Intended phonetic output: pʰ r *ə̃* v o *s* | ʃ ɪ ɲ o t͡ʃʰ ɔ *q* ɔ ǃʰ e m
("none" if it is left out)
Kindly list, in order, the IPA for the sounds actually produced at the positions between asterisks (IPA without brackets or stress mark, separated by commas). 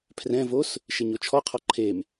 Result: ɛ̃, s, qʰ